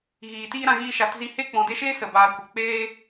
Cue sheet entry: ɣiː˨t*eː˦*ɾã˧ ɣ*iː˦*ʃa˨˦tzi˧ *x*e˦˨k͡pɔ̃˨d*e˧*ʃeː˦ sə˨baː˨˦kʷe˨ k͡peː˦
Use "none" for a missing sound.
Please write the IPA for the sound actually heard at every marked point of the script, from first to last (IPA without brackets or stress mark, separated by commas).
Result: iː˦, iː˧, h, e˧